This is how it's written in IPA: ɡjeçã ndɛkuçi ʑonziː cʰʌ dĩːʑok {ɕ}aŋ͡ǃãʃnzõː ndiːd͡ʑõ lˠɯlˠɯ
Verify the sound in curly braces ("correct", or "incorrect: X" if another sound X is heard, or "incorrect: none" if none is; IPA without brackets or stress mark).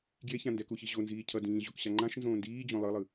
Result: correct